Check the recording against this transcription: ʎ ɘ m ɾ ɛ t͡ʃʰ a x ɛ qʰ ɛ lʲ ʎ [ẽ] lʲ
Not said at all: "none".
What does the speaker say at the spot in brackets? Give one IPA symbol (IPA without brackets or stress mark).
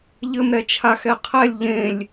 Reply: ẽ